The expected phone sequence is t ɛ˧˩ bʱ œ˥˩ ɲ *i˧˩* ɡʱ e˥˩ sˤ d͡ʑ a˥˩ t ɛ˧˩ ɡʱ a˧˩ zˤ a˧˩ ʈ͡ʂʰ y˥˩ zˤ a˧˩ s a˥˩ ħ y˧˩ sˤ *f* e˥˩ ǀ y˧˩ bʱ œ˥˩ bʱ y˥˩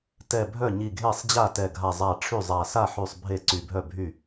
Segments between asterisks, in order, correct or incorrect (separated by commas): correct, incorrect